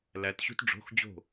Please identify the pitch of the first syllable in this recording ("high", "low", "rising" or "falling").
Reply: rising